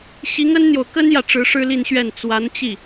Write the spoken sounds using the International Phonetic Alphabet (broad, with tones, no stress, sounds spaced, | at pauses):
ɕ i˧˥ ŋ ə˥ n n̪ j o˨ ʊ̯ k ə˥ n j ä˨ ʈ͡ʂ ɻ̩˧˥ ʂ ɻ̩˥ l i˥˧ n ɕ ɥ ɛ˥˩ n t͡s w a˧˥ n t͡ɕ i˥˩